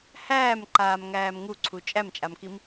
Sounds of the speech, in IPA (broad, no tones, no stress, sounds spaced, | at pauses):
h æː m ǃ aː m ŋ æː m ŋ u ǀʰ u t͡ʃʼ æ m t͡ʃʼ a m k i m